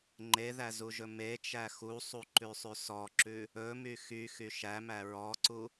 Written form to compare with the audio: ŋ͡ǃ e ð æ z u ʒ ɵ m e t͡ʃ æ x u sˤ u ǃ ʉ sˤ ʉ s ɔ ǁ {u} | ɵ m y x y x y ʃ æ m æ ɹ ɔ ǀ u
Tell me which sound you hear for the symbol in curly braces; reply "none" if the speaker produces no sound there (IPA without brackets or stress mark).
ʉ